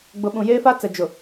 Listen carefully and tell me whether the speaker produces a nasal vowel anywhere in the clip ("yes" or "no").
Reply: yes